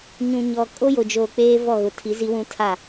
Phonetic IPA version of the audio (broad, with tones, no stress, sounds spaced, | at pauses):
ɲ ũ˨ ɲ ɔ˨ kʼ o˦ j o˨ d͡ʒ oː˨ k͡p eː˦ v ɔ˦˨ ɣ ʊ˨ tʰ i˨˦ z i˦ w ũ˦ tʰ a˦˨